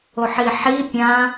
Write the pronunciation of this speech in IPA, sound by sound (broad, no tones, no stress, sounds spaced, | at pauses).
o ħ i ħ i pʲ ã